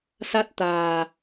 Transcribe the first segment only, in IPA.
s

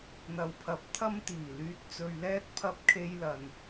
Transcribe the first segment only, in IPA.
n̪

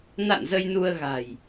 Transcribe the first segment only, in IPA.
n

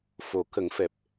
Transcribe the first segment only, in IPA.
f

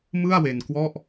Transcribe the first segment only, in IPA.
m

